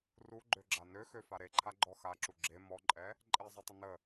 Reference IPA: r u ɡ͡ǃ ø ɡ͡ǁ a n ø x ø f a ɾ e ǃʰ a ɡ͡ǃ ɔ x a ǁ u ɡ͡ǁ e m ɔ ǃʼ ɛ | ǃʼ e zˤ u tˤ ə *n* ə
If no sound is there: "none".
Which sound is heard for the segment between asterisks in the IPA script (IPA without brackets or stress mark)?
n